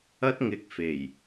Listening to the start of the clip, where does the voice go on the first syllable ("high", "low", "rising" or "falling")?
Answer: high